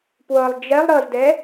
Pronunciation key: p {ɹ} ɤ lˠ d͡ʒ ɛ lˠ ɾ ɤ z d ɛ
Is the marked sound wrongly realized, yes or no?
yes